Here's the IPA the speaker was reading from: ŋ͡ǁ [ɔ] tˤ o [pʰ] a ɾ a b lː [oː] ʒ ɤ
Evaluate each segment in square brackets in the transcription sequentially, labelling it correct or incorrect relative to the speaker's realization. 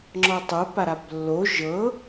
correct, incorrect: p, incorrect: o

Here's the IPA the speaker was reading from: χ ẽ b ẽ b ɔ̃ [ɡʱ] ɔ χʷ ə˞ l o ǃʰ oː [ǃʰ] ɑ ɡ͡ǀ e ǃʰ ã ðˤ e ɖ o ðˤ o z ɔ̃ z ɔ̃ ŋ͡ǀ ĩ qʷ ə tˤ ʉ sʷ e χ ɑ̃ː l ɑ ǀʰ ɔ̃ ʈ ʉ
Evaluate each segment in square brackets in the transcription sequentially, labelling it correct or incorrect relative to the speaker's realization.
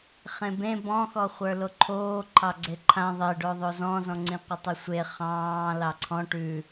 incorrect: x, correct

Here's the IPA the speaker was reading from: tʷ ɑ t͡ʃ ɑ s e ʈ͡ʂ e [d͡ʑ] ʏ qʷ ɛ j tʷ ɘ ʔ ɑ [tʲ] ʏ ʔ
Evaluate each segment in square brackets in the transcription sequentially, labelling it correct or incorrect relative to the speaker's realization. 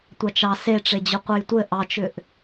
correct, incorrect: t͡ʃ

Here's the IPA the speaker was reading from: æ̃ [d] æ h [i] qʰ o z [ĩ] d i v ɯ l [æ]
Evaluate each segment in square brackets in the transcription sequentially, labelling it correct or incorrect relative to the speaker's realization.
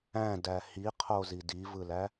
correct, correct, incorrect: i, correct

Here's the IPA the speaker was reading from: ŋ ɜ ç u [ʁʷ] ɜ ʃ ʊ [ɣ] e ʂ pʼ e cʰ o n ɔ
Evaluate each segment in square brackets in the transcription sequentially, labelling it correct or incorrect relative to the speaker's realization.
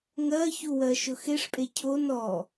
incorrect: w, incorrect: x

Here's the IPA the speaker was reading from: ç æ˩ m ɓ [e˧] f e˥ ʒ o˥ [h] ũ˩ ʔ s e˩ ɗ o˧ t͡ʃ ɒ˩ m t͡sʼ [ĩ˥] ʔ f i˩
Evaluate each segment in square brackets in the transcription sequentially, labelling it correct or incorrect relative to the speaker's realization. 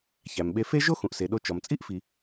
correct, incorrect: x, incorrect: i˥

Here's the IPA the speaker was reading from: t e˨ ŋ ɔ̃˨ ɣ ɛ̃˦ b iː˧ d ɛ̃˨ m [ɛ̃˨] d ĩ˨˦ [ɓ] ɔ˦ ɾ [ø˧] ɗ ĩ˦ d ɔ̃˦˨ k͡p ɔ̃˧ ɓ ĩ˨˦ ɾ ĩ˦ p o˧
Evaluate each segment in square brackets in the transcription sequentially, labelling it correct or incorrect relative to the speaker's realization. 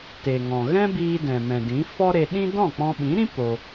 correct, incorrect: f, incorrect: e˧

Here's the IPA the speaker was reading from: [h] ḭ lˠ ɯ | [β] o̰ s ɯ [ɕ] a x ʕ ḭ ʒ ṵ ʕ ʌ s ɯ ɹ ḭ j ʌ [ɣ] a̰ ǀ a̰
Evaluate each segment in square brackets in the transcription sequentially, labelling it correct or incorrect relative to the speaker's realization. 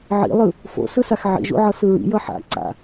incorrect: ʕ, incorrect: f, incorrect: s, incorrect: ħ

